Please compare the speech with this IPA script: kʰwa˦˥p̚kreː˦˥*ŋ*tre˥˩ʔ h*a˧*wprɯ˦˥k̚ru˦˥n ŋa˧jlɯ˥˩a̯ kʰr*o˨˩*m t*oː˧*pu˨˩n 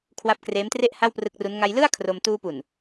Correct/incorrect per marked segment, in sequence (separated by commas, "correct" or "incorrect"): incorrect, incorrect, incorrect, incorrect